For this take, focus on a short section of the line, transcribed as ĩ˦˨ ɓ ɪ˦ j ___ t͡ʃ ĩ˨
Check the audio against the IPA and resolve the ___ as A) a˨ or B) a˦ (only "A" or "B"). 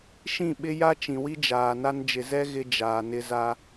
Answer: B